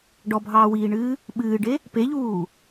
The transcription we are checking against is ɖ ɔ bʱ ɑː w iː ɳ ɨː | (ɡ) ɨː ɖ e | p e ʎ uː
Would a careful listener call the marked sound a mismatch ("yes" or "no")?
yes